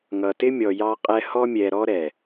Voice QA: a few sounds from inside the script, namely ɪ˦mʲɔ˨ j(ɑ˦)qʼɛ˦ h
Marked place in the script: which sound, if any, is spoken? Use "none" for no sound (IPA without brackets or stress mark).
ɑ˦